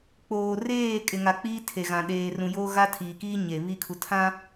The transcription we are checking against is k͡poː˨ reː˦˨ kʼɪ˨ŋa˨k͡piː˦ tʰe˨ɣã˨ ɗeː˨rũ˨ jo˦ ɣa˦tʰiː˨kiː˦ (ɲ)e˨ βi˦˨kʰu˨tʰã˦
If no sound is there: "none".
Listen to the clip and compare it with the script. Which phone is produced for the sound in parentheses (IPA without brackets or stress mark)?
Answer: ɲ